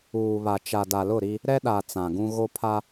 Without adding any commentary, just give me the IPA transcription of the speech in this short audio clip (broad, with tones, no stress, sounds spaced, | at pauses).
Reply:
uː˨ β a˨ t͡ʃ a˨ d a˨ l ʊ˦˨ ɾ i˦ | ɾ ɛ˦ ɗ a˨ t͡s ã˨ ɡ ũ˦ ɣ o˦ pʰ a˦